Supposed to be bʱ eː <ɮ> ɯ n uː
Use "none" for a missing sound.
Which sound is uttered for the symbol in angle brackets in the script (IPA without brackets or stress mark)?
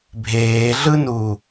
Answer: ɮ